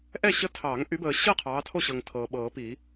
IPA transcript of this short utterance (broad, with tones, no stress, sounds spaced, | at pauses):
ʔ ɛ˥˨ ɕ ə˦ tʰ ɑ˨˩˦ ŋ ʔ y˨˦ b əː˨ ɕ ɤ˥˨ qʰ ɑː˨˦ tʰ o˥˨ ɕ ɤ˨ ŋ tʰ ɤː˨ ɓ ɤː˨˩˦ p i˨˩˦